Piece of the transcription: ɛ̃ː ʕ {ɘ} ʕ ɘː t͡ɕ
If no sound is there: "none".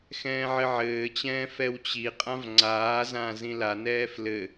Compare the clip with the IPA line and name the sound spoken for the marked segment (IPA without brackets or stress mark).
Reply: ɘ